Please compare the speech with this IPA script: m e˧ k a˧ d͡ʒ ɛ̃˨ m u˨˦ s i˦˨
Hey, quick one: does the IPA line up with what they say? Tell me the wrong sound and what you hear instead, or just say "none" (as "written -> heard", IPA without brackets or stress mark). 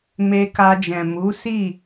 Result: none